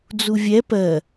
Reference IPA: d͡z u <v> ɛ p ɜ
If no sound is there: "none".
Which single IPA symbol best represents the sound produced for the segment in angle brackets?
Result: vʲ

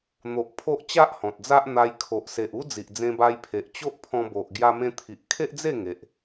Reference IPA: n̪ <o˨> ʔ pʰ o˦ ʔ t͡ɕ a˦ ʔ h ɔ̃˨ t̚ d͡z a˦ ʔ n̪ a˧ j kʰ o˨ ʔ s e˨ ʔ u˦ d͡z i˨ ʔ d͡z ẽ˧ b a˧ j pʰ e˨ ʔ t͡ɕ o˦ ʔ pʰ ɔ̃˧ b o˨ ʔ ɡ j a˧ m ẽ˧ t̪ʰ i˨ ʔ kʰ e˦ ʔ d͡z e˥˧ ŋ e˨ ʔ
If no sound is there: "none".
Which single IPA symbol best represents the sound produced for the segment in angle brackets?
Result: o˨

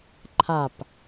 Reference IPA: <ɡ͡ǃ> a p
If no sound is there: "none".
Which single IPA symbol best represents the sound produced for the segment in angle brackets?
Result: ǃʰ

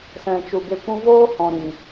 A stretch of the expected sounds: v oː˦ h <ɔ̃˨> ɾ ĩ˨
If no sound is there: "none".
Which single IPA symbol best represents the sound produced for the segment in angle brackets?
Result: ɔ̃˨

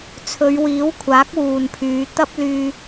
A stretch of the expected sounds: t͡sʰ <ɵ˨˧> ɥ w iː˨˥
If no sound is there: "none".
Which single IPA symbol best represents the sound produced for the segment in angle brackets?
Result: ɵ˨˧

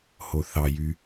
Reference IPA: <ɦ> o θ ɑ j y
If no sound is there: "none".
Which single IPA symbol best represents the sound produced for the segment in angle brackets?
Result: h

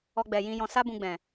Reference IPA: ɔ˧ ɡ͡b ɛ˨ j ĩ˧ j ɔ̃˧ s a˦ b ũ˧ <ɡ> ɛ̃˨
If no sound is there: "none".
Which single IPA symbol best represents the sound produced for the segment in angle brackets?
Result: ɡ͡b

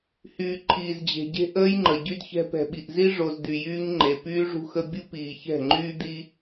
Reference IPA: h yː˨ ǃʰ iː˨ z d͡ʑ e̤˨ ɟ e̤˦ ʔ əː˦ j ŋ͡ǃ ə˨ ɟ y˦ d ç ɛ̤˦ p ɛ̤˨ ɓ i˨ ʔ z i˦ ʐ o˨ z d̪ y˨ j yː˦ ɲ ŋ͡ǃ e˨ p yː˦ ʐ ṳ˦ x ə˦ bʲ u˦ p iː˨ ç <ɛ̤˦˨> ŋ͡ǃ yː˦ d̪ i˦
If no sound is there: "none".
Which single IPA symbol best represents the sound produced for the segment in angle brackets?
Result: ɛ̤˦˨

